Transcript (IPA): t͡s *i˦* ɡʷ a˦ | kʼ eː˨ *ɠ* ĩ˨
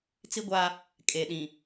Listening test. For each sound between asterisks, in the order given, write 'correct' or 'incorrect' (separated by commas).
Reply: correct, incorrect